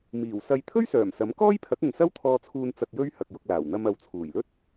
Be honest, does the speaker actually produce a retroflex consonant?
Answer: no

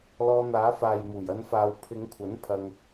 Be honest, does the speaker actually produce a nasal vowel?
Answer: no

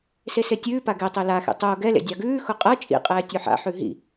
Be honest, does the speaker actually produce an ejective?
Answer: yes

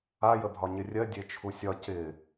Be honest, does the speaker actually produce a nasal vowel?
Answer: no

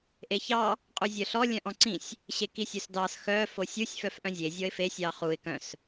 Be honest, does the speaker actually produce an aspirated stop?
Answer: no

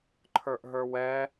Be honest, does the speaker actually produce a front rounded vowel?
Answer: no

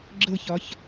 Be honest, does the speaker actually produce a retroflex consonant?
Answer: no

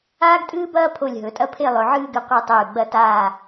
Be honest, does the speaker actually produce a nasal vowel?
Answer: no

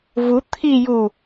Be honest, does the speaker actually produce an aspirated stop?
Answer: yes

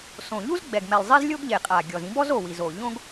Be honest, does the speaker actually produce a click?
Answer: no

